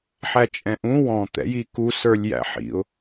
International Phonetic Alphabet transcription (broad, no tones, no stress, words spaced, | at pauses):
ħæt͡ʃʼɛ̃ʔũ wɔ̃ t̪ɛ̰jiku sə˞lʲjæ̰ħḭʊ̯